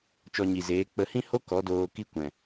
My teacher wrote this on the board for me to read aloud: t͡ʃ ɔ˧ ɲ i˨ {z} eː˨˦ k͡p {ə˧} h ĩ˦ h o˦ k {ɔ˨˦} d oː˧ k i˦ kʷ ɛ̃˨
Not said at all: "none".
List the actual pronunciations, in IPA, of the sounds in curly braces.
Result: z, ə˧, ɔ˨˦

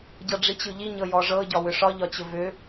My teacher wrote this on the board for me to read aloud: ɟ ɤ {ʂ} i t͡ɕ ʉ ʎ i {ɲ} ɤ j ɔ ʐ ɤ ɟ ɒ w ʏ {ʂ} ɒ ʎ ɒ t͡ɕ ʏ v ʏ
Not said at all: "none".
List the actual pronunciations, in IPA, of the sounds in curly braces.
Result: ɖ͡ʐ, ɲ, ʂ

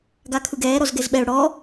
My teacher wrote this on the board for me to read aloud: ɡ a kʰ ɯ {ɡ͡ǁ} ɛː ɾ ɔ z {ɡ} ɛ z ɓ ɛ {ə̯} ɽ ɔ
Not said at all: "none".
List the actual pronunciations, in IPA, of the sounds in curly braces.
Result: ɡ, ɡ, ʊ̯

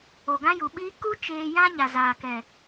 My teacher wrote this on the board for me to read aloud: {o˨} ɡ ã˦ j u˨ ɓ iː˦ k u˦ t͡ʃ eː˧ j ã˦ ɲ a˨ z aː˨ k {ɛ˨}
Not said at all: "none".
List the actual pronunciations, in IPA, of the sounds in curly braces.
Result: o˨, ɛ˨

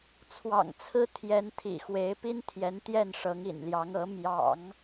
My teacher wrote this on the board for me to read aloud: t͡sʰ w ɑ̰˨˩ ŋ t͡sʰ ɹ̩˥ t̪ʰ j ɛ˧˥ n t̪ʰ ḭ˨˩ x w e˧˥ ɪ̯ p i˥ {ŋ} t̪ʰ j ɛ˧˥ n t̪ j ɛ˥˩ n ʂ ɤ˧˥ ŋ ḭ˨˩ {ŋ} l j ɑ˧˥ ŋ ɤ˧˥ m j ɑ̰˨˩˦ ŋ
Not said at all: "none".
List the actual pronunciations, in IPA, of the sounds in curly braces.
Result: n, n

